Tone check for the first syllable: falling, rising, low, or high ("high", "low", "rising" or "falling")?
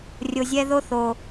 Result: low